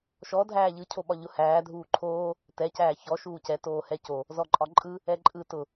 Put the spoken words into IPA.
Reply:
ʃ ɔ dʱ æː ʎ ɯ cʰ o ɓ ɒ ʎ ʊ h æː dʱ uː ǃʰ oː | t ɛ c æː ç ɔ ʃ uː c ɛ t oː h ɛ c o | z ɔ ǃʼ ɒ ǃʼ ɯ | ɛ ǃʼ ɯ t ʊ

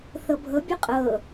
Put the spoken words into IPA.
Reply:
θ ɤ bʱ ɤ bʲ u qʼ ɤ

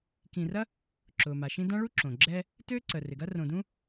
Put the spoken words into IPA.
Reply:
k ĩ˨ r ɐ˥ | ǁ ʊː˩ m a˩ ʃ ĩ˦ d ã˥ ɭ u˥ ǁ õ˩ ɡ͡ǁ ɛ˦ | t øː˥ ǀ əː˩ r ɪ˩ ɡ ɐ˥ r õ˨ d ũ˥

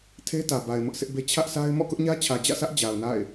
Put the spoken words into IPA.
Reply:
tʰ e˦ t ä˨ b a˨ ɪ̯ m ʊ˦ ʔ sʰ ɪ˦ ʔ b e˦ t͡ɕʰ ä˦ ʔ sʰ a˦ ɪ̯ m ɔ̰˦˨ k ʊ˦ ʔ ɲ ä˦ t͡ɕʰ ä˨ d͡ʑ ä̰˦˨ sʰ ä˦ ʔ d͡ʑ a˨ ʊ̯ n a̰˦˨ ɪ̯

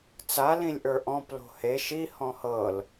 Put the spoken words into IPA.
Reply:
t͡s a l ĩ lʲ ʔ ə˞ ʔ ɔ̃ p l o̤ h e ʃ i h ɔ̃ h ɤ l

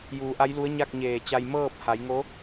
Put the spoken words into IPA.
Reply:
j uː˩˧ ʔ a˧˥ j l u˧˥ ə̯ ɲ a˥˨ k̚ ɲ eː˧˩ t͡ɕ a˧ j m ɤː˥˨ p̚ h a˩˧ j ŋ o˧˥

